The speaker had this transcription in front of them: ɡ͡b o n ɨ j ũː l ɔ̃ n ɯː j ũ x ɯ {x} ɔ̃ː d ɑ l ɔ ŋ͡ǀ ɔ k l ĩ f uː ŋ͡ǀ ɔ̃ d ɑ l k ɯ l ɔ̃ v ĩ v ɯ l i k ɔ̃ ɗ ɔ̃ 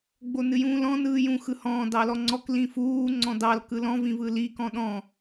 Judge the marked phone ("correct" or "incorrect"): incorrect